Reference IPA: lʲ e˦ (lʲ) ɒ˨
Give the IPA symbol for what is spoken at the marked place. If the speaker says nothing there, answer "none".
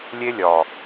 lʲ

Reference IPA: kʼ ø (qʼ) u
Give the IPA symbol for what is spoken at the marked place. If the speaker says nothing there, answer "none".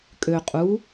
qʼ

